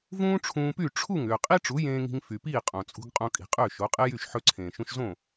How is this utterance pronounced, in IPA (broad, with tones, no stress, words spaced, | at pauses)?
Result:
vũː˥ʈ͡ʂʰũː˧py˥˩ ʈ͡ʂʰu˥˩ŋ ʏː˩qʼi˥ʈ͡ʂu˩˥ jẽː˧ŋi̤˧ŋ fy˩piː˥˩ qʼõ˩t͡sʼṳ˧ɡ qʼõ˧kʼi̤˩qʼʏː˥˩ ʃo˩˥qʼe˥jy˥˩ʃ ħɵ˧ǀʰẽː˩ʃũ˧ʃzõ˥˩